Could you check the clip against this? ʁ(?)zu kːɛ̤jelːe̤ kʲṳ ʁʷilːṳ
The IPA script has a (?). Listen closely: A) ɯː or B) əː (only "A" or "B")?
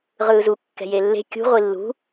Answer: A